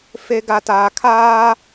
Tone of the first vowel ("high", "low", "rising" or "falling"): low